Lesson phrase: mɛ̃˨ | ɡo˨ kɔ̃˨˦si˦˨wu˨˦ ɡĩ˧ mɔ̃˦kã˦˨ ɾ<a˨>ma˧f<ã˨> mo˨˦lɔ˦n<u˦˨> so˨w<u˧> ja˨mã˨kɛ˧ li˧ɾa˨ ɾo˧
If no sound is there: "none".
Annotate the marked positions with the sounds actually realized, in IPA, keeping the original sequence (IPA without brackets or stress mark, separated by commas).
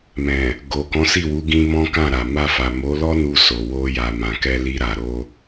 a˨, a˨, u˧, o˧